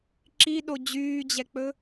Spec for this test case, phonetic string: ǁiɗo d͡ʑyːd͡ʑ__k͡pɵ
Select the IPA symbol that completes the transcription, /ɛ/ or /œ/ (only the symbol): ɛ